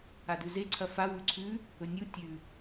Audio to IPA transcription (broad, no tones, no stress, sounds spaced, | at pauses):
a d ʉ z e ǀʰ ɐ f a w ʉ ǀʰ ʉ | ɵ nʲ u tʲ ʉ